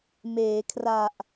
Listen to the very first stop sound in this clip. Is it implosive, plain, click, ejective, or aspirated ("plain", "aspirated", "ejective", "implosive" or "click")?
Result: aspirated